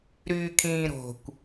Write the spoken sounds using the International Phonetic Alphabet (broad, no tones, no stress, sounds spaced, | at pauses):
ɾ yː kʰ ĩː ɾ o̤ kʷ